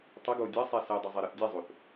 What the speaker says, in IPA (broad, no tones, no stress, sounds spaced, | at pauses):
tˤ ə ɡ o dʲ ɐ sˤ ɛ s ɛ dˤ o zˤ e ɾ ʌ θ dʲ e zˤ o θ